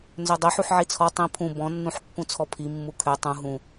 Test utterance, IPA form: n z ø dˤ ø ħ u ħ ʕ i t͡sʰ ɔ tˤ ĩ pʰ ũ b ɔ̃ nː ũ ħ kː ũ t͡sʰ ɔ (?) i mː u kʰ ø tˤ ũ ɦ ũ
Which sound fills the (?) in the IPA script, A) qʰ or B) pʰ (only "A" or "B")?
B